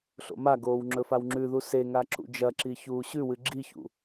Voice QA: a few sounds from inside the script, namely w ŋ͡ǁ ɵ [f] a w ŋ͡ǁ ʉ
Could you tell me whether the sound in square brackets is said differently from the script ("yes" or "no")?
no